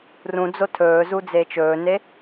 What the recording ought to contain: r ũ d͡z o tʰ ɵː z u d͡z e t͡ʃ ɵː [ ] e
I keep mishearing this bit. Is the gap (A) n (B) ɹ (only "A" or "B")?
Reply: A